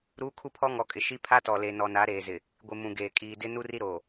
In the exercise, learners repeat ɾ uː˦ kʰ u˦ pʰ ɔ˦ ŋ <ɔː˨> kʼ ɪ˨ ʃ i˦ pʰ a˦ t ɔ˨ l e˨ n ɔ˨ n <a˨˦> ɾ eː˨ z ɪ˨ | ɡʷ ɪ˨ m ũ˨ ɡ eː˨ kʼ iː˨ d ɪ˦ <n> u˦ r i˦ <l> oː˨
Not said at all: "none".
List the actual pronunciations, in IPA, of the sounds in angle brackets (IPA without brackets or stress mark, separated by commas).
ɔ˨, a˨˦, n, ɾ